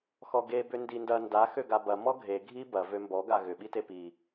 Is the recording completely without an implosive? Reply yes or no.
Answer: no